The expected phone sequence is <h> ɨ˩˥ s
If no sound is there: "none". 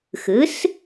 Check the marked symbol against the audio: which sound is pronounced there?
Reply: x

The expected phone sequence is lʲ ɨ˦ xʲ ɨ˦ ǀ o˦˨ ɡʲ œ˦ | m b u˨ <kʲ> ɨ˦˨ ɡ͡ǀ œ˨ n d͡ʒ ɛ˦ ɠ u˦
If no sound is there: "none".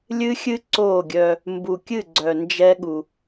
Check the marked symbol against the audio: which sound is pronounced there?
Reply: kʲ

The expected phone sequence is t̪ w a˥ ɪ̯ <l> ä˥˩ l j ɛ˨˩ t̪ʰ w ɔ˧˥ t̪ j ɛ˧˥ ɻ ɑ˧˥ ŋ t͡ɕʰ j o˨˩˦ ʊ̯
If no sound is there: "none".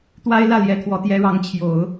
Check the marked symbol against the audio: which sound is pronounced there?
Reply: l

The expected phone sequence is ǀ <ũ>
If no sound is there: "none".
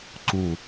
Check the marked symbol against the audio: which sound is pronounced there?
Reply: ũ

